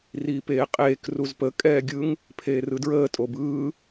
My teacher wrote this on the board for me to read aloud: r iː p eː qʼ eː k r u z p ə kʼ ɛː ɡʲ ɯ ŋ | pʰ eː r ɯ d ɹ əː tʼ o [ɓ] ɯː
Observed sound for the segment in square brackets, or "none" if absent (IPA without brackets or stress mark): b